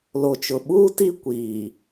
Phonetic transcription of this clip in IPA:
l o˨ t͡ʃ ʊ˨ ɓ uː˦ t i˦ kʷ iː˨

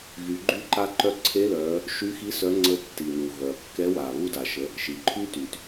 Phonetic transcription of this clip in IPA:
ɣ y˩˧ ɡ͡ǃ y˧˥ ǃ a˧ ǃ œ˧ ǀʰ e˧˥ l œ˩˧ | ʃ y˧˥ x i˧˥ s œ˧˥ ŋ͡ǀ ə˧˥ tː i˩ n u˩ ɣ œ˩ ɐ̯ kː ɛ˧˥ w a˩ β u˧ d a˩ ʃ ə˩˧ | ʃ i˩ ǃʰ y˥ t y˩ t

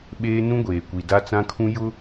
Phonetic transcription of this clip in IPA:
ɓ eː˦ n ũ˦ ɡʷ eː˨ kʷ i˨ d a˦ t͡s ã˦ kʰ ũ˦ j ʊ˦

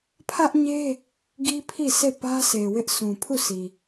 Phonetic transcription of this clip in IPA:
pʰ ä˦ ʔ ɲ e˦ | ɡ i˦ pʰ i˦˨ sʰ e˦˨ p ä˦ sʰ e˨ w ɪ˦ ʔ s ũ˨ pʰ u˦˨ s i˨

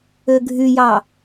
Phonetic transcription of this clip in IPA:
ø ɡʱ y j ɑ

